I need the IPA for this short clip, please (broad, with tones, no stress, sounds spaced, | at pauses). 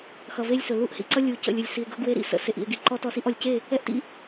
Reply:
x ʌ˨ v e˦ lʲ s ɵ˨ l u˦ ʔ h ḭ˦ ǀ ʌ˦ lʲ u˨ c ə̰˨ lʲ ɵ˨ lʲ s i˨ e̯ ɡ ɵ˦ ɡ w e˦ ɾ ḭ˦ s ə̰˦˨ s e˨ ʔ ḭ˨ e̯ ɡ i˨ ǃ ɔ˦ t ɔ˦ s i˦ ʔ ɔ˨ lʲ c e˦˨ | ɛ˦ ʔ t ḭ˦